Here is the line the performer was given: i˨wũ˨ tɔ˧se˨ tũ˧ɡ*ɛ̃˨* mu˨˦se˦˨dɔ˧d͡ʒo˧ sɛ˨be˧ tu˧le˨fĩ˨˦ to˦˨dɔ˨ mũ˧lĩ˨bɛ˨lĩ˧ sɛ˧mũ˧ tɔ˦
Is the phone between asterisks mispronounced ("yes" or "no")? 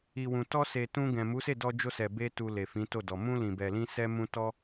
no